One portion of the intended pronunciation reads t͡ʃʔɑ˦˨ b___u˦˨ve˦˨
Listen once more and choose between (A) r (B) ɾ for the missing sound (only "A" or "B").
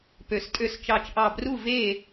A